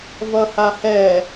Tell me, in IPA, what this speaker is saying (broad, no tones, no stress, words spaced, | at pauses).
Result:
vʌhahɛ